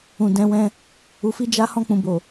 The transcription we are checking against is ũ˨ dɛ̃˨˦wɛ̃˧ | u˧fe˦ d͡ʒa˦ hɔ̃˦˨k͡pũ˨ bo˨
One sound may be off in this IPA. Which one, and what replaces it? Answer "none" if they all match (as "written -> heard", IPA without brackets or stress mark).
e˦ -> i˦